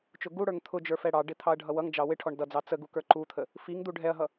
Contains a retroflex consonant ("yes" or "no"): yes